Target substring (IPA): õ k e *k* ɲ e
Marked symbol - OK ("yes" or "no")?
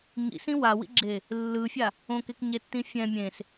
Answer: yes